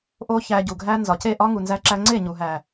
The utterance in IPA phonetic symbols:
ʔo˦çæ˧ɟu˨ɡʱæ˦ nzɒ˨ce˦˨ ʔɒ˦ŋu˨nzæ˧ ǁæ˧ŋ͡ǀe˦˨ɲu˨ɦæ˨

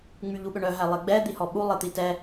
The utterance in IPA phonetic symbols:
ŋ͡myʎuɓøɳœ ɦælˠeɡ͡bɛ d̪ihɔɓu lˠet̪itɛ

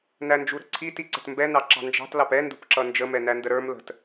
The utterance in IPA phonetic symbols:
nænd͡ʒuɾə̤ǀʰi tiǀə̤tmbɛ nɑǁɑ̤nd͡ʒɑ̤t lɑpɛ ndṳpǁʌnd͡ʒə mɛnændəɾə˞m lə̤t

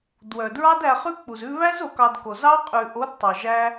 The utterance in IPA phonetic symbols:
dwœ˨dɹɑ˦dæ˧χʉ˦ k͡pu˨zʉ˧βæ˦z o˨˦kɑ˧dko˨ zɑ˦qʼʉ˨ ʔo˨˦d tˤœ˨ʒæ˦

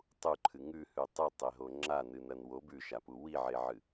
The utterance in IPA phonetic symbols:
tˤuǃʰɨ ŋʉhʉ tˤɨtˤeɦo ŋ͡ǁanɨnɐn wo bʉʃapu wiʕeʕɨ

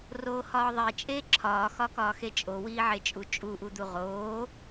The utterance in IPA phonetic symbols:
roːhɒːðˤe t͡ʃʼeːǁʰɒː xɒkɒːxet͡ʃʼo wiːʕet͡ʃʼut͡ʃʼu ʔud̪uʁoː

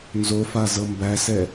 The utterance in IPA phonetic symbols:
nzofazɤ mbæsɛ

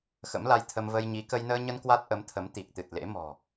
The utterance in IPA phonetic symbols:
xə̰˧˥mla˧jt̪ʰə˧m və˧jɲi˨˦ kə˧jnəː˧ɲə˧n kwa˦˥t̚ʔə˨˦mt̪ʰə˨˦m t̪i˨˩k̚t̪ɨ˨˩t̚ lḛ˧˥ mɔ̤˨˩

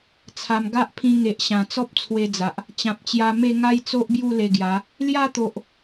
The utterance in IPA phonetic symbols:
t͡sʰa˨˩m ɡa˦ʔpʰĩ˧ŋe˨ʔ ɕã˨˩ t͡sɔ˦p̚t͡sʰwe˧d͡za˨ʔ | t͡ɕã˨p̚t͡ɕja˧ me˥˧ ŋa˦jt͡so˦ʔbju˥˧ le˧ɡja˨˦ | lja˥˧t̪o˨ʔ

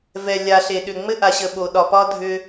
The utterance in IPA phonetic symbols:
vɛ˨lʲa˨ ɬe˨ɗʏ˨ ŋ͡mɘ˦ʔa˨ɕə˨ ɓo˨ɗɒ˨pɒ˦ dʱʏ˦

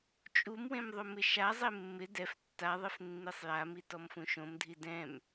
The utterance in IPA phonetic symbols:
t͡ʃʼumwẽm ðˤomɪʃazˤe mːɪ dɛf tːaðˤef nːisˤjami tɔmfũʃõmdʱi dɛ̃m

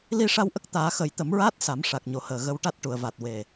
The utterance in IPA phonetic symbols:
li˧ʂa˧wʔə˦˥k̚ t̪aː˨˩˦xə˨˩˦jt̪ə˨˩˦mɹaː˦˥t̚ sa˨˩˦mʂa˨˩k̚ɲo˨˩həː˨˩ ɣə˧wʈa˦˥t̚ʈu˨˩˨ə̯va˨˩t̚ we˨˩

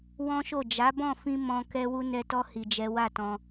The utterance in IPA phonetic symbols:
wɔ̃˦ʃo˦˨ d͡ʒa˨˦bɔ̃˦˨fĩ˧ mɔ̃˧ kɛ˦wu˦ nɛ˧tɔ˦ hi˧d͡ʒɛ˦ wa˦˨tɔ̃˧

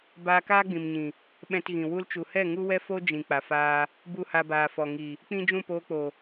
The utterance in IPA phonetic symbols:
baː˧kaː˦ɡ͡bĩ˨mɲĩ˨ | ɓɛ̃˧tɣĩ˨ wu˧lt͡ʃu˨hɛ˦˨ ŋu˦wɛ˦fo˦ d͡ʒĩ˨ k͡pa˨faː˧ | bu˦˨ha˧baː˨fɔ˨ ŋi˨ | k͡pĩ˦d͡ʒũ˦˨poː˧k͡po˨

